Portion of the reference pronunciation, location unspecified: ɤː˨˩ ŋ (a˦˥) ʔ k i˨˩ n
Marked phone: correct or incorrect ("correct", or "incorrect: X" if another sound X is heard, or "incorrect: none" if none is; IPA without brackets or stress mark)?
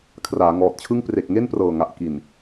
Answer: incorrect: a˨˩